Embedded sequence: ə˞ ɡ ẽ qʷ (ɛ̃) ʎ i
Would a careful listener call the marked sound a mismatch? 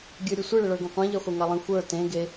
yes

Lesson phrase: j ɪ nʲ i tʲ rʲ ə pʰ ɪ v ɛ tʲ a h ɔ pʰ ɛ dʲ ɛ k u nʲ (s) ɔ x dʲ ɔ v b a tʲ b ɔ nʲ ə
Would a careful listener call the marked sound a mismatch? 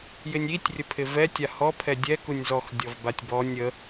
yes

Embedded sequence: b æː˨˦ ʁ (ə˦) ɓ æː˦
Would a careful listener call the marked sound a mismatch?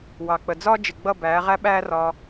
yes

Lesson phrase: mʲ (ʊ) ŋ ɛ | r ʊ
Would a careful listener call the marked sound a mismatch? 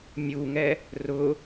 yes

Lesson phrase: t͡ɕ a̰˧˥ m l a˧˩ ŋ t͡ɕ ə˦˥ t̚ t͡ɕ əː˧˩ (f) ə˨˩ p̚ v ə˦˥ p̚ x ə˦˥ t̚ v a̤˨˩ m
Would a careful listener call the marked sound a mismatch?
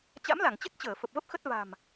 no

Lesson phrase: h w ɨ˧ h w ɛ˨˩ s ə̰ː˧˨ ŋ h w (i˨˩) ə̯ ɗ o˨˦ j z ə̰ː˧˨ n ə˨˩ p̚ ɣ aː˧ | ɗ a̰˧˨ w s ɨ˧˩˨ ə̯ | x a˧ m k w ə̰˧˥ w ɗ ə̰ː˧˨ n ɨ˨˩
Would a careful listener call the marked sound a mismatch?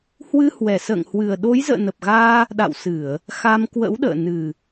yes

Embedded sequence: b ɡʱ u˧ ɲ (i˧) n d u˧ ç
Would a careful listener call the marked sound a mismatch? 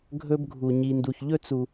no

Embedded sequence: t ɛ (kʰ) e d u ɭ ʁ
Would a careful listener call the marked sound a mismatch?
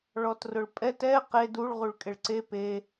yes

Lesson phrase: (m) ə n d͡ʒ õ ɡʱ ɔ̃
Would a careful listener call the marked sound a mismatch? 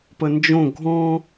yes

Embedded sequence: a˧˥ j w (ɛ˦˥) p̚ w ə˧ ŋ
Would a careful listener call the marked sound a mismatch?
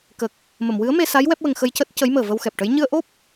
no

